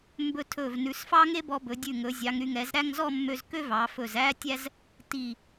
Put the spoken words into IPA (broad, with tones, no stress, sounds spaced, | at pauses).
m b ɵ˧ tʰ ɵ˧˩ v n ʉ˩˧ s f ɑ˥ ŋ e˥ b ɔ˧ b ɵ˩˧ dʲ ʉ˧˩ ŋ ɵ˩˧ zʲ ɑ˩˧ ŋ ɾ y˩˧ ŋ ɛ˩˧ z ɾ æ˥˧ ŋ z ɔ˥˧ mː ø˧ z k ø˥ v ɑ˩˧ f ɵ˧˩ z æ˥ tʲ æ˥ z | t i˧˩